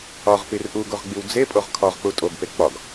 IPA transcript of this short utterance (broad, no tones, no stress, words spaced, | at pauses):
ɒʁpir ʔuɡoʁɡ͡biw d͡zepʼoʁ kʰɒʁk͡pu tʼoɡpe k͡pɒɡ